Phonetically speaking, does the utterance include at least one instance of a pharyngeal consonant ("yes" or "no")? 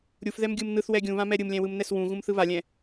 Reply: no